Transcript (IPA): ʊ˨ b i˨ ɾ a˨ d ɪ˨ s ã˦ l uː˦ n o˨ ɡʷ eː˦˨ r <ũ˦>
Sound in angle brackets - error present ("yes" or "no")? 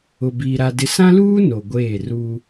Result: yes